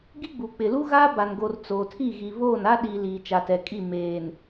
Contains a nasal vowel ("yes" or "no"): no